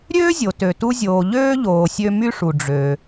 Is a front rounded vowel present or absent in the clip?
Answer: present